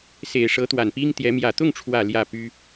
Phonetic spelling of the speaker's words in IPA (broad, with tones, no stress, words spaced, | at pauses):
se˨˩ɪ̯ ʂɤ˧˥t̪wa˨˩npi˥ŋt̪jɛ˧˥ mjä˨˩t̪ʊ˥˩ŋʈ͡ʂʰwä˨˩ ljä˥˩py˥